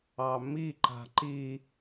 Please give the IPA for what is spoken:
ɑ m i ǃ a̤ ǃ i

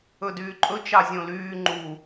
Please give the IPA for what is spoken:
ɵ d yː ǃʼ ɵ t͡ʃ ɑ zʲ õ l yː ŋ͡ǃ u

